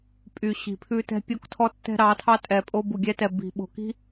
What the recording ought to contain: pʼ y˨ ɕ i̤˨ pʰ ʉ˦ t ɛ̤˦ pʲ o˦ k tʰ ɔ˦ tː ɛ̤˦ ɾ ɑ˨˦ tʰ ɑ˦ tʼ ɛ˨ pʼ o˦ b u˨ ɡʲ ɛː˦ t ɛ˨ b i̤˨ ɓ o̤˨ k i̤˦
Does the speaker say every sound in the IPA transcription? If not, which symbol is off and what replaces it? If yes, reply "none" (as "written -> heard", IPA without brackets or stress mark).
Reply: ɛː˦ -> ɛ˦